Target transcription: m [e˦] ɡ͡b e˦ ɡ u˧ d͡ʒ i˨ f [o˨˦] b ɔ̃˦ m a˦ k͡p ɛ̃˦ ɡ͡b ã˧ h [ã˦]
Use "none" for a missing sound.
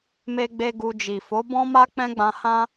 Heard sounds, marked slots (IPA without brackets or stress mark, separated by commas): e˦, o˨˦, ã˦